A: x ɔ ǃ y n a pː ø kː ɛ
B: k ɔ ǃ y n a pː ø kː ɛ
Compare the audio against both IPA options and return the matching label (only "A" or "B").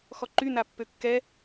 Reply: A